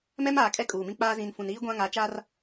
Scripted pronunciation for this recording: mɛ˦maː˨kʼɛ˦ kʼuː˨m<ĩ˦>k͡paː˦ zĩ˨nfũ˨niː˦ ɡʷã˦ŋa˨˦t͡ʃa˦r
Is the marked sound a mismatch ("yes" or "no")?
no